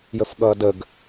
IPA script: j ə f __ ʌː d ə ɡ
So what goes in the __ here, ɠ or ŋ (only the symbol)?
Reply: ɠ